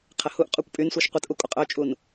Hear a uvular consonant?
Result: yes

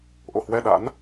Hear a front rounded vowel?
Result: no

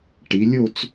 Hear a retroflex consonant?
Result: yes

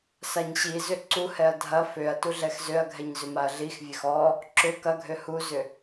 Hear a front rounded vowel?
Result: yes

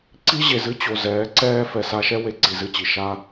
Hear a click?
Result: yes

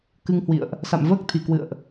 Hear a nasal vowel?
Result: no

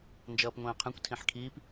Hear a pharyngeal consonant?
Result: yes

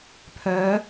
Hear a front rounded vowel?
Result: yes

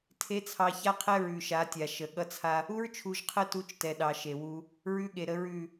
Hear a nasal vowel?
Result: no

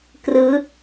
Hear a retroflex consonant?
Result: no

